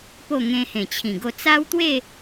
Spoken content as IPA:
po˥˧ ŋẽ˧hẽ˨˩t͡ɕʰĩ˨˩ ɡo˧t͡sa˦wt̪we˥˧

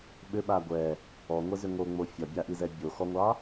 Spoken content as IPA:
ɓʏɓa ɡʷɛ | ɔŋʷɛzʏ ŋoŋ͡mo fʲɒbʲaʔizɛ bʲoxɔŋʷɑ

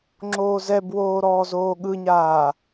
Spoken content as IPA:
ŋ͡ǁoːzɛbwoː ɾɔːzoːɠɯɲaː

